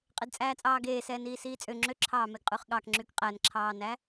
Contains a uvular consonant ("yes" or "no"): yes